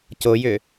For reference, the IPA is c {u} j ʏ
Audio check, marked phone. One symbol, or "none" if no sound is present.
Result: o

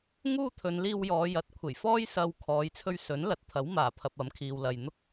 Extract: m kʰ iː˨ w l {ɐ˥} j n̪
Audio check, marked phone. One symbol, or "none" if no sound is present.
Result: ɐ˨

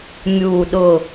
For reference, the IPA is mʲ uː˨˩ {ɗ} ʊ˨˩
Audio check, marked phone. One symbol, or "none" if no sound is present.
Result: ɗ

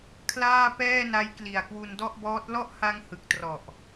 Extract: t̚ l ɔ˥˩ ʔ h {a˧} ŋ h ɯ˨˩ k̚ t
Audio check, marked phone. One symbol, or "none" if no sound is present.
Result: a˧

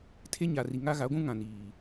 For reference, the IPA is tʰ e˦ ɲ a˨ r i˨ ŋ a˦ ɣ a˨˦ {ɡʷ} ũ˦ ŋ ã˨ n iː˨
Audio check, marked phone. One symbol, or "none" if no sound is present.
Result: ɡʷ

